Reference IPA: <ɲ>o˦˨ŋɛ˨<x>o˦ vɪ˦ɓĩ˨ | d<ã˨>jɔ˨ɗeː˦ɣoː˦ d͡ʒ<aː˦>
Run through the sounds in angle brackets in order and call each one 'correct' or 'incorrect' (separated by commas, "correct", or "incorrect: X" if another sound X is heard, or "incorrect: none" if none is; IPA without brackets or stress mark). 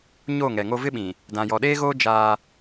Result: correct, incorrect: ŋ, correct, correct